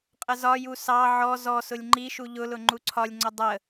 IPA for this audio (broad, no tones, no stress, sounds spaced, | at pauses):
qʼ ə z ɒ j u s ɑ ʕ ɔ z ɔ s ʊ lʲ ŋ͡ǃ i ʃ u ʎ ʊ l ʊ ŋ͡ǃ u ǀʰ ɒ lʲ ŋ͡ǀ ʊ dˤ ə